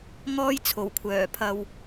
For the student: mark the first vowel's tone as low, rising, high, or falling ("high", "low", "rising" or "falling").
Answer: high